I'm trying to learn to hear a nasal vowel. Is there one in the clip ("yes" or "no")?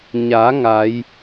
no